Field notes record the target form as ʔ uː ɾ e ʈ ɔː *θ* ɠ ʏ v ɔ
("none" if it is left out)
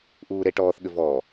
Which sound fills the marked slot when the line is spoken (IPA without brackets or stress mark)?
θ